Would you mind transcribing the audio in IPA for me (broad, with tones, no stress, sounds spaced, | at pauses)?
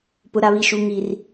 p ʊ˨ ɾ a˨ β i˨ ʃ u˨ ŋ i˨ r